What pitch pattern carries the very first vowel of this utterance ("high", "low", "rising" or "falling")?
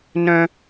high